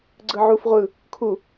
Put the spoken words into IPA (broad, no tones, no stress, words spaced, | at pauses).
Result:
ɡ͡ǀɯʕuf ʁʷɯ | kʰu